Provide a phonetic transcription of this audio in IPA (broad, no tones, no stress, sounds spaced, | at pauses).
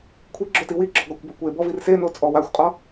kʷʰ i ɡ͡ǁ o t i w i ɡ͡ǁ ɔ ɡ ɒ kʷ b a kʷ e b ɔ v i r s e n o t͡sʼ ɔ w a xʷ qʼ ɒ